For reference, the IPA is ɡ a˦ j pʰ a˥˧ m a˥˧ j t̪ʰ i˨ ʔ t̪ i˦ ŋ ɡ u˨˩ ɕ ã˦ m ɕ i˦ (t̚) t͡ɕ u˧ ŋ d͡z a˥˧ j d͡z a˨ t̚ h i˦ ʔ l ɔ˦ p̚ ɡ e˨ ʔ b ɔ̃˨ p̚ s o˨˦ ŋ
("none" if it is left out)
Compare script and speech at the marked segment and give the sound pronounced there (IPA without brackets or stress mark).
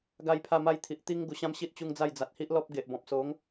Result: t̚